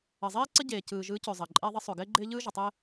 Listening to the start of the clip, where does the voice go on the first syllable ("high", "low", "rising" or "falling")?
low